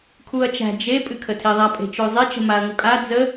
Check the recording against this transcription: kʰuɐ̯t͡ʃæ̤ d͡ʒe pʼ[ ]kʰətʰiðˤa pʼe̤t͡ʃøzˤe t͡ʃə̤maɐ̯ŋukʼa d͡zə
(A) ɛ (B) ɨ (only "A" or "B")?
B